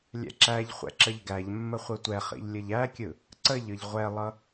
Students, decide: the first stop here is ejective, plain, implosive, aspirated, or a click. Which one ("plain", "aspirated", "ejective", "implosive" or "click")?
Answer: click